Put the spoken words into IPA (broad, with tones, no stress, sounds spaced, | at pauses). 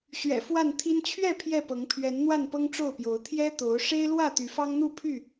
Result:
ɕ ɥ ɛ̰˨˩ f w a˥˨ n t̪ʰ i˦ n t͡ɕʰ ɥ ɛ˥˨ pʰ j ɛ˥˨ p ɤ˨˦ ŋ pʰ ɥ ɛ˨˦ n n̪ w a˥˨ n p ɤ˦ ŋ ʈ͡ʂ o˥˨ ʊ̯ p j o˨˦ ʊ̯ t̪ʰ j ɛ˦ t̪ o˨˦ ʊ̯ ʂ e˦ ɪ̯ l w ä˥˨ t̪ y˨˦ f ɑ˦ ŋ n̪ u˥˨ pʰ y˥˨